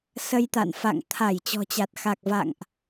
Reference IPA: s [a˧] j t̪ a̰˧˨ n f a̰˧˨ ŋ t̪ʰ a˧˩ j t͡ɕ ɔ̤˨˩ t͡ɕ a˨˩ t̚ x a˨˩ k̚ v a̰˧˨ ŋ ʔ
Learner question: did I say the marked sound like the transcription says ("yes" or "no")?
no